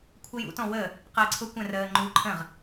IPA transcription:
kʷʰəjṵ tɔ̃wə | qəːǀʰʊ kʷɛ̃rəː ŋ͡ǃuːǃʰə̃ʁ

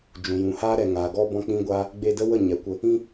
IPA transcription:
d͡ʒũ˨jũ˨ haː˦ɾɛ˨ ŋaː˨ ɡɔ˦ bɔ̃˦k͡pĩ˦ɡʷaː˦ | ɡ͡be˧də˦ wə˦˨ ɲɛ˨˦kʷə˧ | ĩ˦

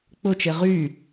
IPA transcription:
k͡pʊt͡ʃe ʁy

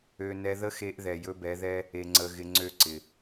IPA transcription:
ø˦ nɛ˧ðə˦xe˧ʔ ðɛ˨jɵ˦bɛ˨˦ðɛ˦ | e˧ŋ͡ǀə˧ ɣɪ˧ ŋ͡ǀø˦˨ ǀɪ˨

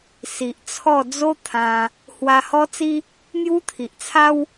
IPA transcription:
si˨ʔ t͡sʰɔ˥˧ d͡zo˦ t̪ʰã˧ | hwa˧hɔ˦t͡si˦ | n̪ju˦t̪ʰi˨ʔt͡sʰa˦w

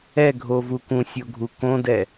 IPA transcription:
ɛɡʱovu kũsʲoɡʱu kõdɛ

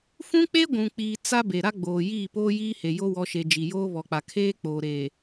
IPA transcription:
fũ˦k͡pe˦ ɡʷũ˨k͡piː˨ t͡sa˦be˨ ɾa˦ɡ͡boː˨ jiː˦˨poː˦ jiː˦he˨ jo˦wɔ˨˦ʃe˨ d͡ʒi˨joː˦ βɔ˨k͡pa˨ kʰeː˦k͡poː˨ɾeː˨

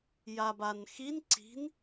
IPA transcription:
jabanxin ǀi̤n

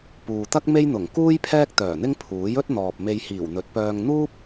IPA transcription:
puː˨t̪ɐ˥k̚ me˥jn̪ʊ˨˩ŋ kuː˥j pʰɛː˥k̚t̪œː˨˩n̪ɪ˥ŋ pʰuː˨˥j ɵ˥t̚n̪ɔː˨p̚ me˧jhiː˨˩wn̪ɵ˨˥t̚pœː˧ŋ n̪uː˥p̚

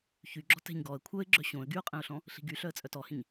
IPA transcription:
çyɡ͡ǁɔ̤ tɛ̤ɲɡɔə̯ kʷʰœɪ̯ ɡ͡ǁœɕõə̯ ɡyʊ̯qʼɛ̃ʊ̯ɬɔ̃ | ɬi̤ɡy ɬœə̯t͡sʼœtɔhĩɲ

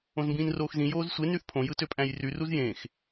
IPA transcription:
õzmbĩːnroːxzĩ joːzsʷe nyθpʰõ jɯtøpʼæ̃jry ruzjẽx

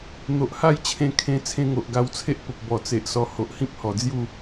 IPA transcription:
n̪o˨ʔha˥˧jt͡ɕʰẽ˧kʰẽ˧ t͡sʰẽ˧ŋo˨ʔ ɡa˧wt͡sʰe˦ʔpə˨p̚ bɔ˨˩t͡se˨ʔsɔ˧ ho˨ʔhĩ˦p̚ hɔ˨˩d͡zju˥˧

